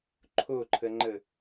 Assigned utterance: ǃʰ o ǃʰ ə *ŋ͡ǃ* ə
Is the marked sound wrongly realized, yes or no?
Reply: no